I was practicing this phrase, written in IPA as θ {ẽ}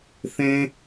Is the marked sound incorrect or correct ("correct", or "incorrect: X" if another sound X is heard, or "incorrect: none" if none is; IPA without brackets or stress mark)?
correct